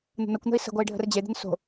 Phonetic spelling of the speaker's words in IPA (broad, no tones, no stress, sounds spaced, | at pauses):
n̪ ə̤ n ʌ kʷ n̪ ə̤ i̯ s ə̤ ɡʷ ʌ i̯ ɖʱ ə̤ r d͡ʑ e d̪ ə̤ n s o̤